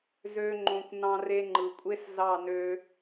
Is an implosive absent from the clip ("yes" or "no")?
yes